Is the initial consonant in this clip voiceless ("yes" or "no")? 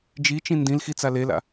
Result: no